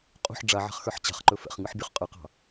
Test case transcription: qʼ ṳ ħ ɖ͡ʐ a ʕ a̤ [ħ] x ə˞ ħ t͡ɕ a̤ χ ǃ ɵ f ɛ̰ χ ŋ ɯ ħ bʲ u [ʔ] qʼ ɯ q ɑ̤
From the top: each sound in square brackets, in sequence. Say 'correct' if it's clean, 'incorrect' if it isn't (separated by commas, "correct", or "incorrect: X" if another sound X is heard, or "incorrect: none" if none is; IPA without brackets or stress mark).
incorrect: χ, incorrect: χ